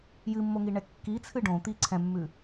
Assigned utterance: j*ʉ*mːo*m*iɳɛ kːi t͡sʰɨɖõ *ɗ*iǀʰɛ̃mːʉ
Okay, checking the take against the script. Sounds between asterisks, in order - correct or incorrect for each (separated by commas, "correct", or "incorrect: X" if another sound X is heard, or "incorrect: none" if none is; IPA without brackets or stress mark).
incorrect: ɨ, incorrect: ŋ, incorrect: t̪